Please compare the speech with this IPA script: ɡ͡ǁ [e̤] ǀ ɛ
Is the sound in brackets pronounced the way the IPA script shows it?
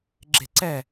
yes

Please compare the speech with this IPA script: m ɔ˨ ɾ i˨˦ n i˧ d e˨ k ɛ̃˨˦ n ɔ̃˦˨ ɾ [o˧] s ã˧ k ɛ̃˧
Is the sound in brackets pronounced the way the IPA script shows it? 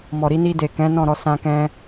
no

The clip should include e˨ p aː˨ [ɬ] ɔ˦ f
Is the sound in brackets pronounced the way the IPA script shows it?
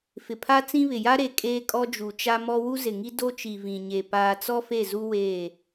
no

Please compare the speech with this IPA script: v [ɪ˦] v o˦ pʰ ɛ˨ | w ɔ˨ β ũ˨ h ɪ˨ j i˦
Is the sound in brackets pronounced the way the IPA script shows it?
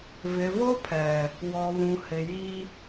no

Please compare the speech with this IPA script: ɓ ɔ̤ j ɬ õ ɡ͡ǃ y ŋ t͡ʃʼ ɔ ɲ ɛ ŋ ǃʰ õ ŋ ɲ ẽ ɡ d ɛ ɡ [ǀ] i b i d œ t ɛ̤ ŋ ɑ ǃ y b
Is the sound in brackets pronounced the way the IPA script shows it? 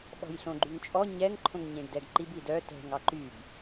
no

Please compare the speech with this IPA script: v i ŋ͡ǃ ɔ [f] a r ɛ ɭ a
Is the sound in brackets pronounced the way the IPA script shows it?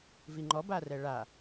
no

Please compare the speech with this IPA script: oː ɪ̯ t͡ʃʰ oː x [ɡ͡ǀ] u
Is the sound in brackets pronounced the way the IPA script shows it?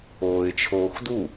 no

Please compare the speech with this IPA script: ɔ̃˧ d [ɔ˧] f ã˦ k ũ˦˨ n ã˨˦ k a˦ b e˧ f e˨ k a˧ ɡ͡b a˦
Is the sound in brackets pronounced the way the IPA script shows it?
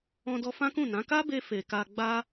yes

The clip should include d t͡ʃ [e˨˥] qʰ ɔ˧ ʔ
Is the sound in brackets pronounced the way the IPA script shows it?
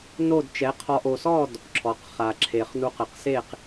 no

